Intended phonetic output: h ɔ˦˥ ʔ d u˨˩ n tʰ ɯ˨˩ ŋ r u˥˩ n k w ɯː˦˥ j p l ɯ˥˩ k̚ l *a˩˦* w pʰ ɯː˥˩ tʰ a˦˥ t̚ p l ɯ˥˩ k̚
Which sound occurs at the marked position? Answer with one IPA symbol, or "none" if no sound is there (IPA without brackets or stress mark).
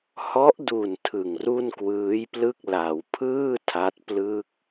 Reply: a˩˦